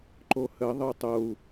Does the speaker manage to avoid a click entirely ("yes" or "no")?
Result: no